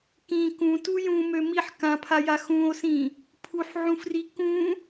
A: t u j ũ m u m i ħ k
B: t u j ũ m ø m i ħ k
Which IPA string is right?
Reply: B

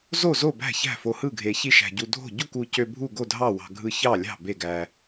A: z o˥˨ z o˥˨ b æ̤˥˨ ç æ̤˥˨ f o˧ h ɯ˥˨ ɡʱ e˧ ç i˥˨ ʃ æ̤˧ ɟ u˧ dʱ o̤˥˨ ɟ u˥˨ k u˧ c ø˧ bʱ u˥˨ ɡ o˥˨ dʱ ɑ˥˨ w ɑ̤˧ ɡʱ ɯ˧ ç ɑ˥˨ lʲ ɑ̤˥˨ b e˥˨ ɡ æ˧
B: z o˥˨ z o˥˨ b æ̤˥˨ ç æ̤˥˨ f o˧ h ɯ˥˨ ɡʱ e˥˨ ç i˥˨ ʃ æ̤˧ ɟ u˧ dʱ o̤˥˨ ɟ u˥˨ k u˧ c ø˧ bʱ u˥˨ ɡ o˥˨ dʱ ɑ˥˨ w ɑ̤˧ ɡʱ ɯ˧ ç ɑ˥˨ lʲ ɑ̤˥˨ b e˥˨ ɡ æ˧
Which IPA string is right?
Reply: A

